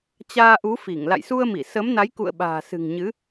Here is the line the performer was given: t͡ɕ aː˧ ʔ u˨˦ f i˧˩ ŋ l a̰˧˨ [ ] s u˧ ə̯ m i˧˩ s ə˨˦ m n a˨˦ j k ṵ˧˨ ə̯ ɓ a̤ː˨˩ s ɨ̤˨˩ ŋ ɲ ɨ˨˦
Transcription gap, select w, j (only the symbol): j